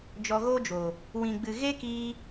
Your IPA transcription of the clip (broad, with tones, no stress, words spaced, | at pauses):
d͡ʒɔ˧ɣo˦d͡ʒo˨ | wĩ˨ɡ͡bɨ˨ ɣe˦kiː˧